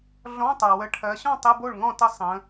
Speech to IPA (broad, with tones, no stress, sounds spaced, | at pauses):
ɮ ɔ̃˧˥˧ tˤ ɜ˩ w ə˩˧˩ ʈʰ ɜ˩˧ ɕ ɔ̃˥˩ tˤ ə˧˥˧ b o˥˩ ɭ ŋ ɔ̃˥˩ t ə˥˩ sˤ ə̃˩˧